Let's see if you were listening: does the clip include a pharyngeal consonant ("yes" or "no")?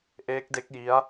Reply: no